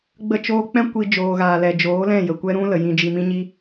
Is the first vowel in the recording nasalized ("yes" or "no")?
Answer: no